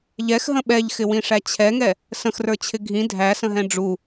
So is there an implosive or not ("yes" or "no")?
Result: yes